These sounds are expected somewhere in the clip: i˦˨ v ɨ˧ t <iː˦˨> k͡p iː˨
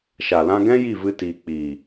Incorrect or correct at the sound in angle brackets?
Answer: incorrect: iː˨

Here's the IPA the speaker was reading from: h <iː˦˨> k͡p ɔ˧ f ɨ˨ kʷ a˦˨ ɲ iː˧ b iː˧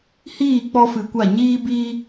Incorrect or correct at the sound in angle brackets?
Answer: correct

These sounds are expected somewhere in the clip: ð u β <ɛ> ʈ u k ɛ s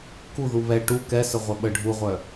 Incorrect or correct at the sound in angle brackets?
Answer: correct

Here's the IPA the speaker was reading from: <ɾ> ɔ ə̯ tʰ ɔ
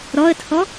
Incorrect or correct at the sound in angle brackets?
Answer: correct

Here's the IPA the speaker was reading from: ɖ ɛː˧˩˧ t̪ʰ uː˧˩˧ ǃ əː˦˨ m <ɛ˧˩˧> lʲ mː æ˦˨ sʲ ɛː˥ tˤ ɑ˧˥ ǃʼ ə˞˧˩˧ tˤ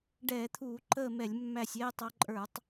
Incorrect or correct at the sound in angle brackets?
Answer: correct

